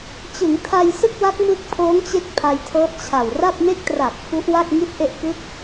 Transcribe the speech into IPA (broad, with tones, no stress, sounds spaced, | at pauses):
t͡ɕ ɯ˩˦ ŋ tʰ a˧ j s ɯ˥˩ k̚ w a˦˥ k̚ m ɯ˦˥ k̚ pʰ oː˦˥ ŋ t͡ɕ e˦˥ k̚ pʰ a˧ j tʰ ɤː˦˥ t̚ t͡ɕʰ a˨˩ w r a˥˩ p̚ m e˥˩ k̚ t r a˨˩ k̚ f u˦˥ ʔ w a˥˩ k̚ ŋ i˥˩ t̚ ʔ e˥˩ ʔ k ɯ˦˥ k̚